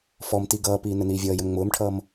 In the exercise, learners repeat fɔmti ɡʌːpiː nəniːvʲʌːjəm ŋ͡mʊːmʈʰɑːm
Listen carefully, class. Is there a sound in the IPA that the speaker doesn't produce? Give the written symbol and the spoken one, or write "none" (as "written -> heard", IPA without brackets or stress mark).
ɑː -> ʌː